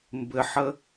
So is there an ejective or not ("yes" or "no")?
no